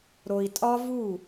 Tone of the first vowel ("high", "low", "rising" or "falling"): low